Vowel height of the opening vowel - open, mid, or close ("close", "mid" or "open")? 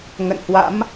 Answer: mid